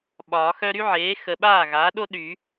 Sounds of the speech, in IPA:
ɓ ɒː˨˩˦ x œ˥ ɾ y˥ ʕ eː˩˥ x ə˨ ɓ aː˥˩ ɣ aː˩˥ ɗ o˥ ɗ y˨˩˦

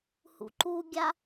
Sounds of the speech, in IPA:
h ṵ ǃ u ɡʲ a

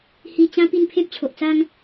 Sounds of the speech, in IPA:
h i˧ t͡ɕ ã˦ p i˥˧ n pʰ ẽ˦ p̚ t͡ɕʰ o˨ ʔ t͡s a˦ ŋ

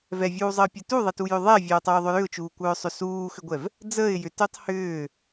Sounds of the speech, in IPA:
v ɛ vʲ uː zˤ əː pʲ ɛ t u ðˤ ɛ t u j ʏ ðˤ ɛ vʲ œː tˤ ʏː ðˤ ʏ j ʏ ʊ̯ t͡ʃ uː kʷ œː sˤ ʏ s uː x ʏ ɡʷ ɛ v | d͡z əː ɪ̯ j ʏ t ʏː tˤ h ʏː

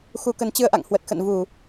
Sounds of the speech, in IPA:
x u˧ k ə˨˦ n t͡ɕ ɨ˧ ə̯ ʔ a̰˧˨ ŋ h w ə˨˩ t̚ x ə̰˧˨ n v u˧˩˨

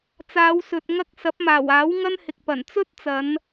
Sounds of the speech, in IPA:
t͡s aː˨˧ w s ɵ˨ t̚ ŋ ɐ˥ k̚ s ɐ˨˥ p̚ m aː˨˩ w aː˨˥ w ŋ ɐ˥ n h ɪ˨ k̚ p ɐ˨˩ n t͡s ɵ˥ t̚ t͡s ɐ˨˧ n

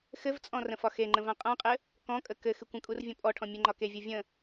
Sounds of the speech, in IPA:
x ɘ v t͡sʼ ɔ̃ r ə̃ f ɒ x e ŋ͡ǃ ə̃ v ã qʼ ã qʼ ɘ | k ɔ̃ kʼ ə k ɘ x ɨ kʷ ə̃ kʼ u r vʲ ɔ̃ pʼ ɔ ʈʰ ɔ̃ mʲ ɘ ŋ͡ǃ ɒ k e vʲ ɤ vʲ ə̃

